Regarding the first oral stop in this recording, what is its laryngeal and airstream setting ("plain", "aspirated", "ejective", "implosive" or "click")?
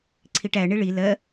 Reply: click